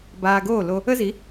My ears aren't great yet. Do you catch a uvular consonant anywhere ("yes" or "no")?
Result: no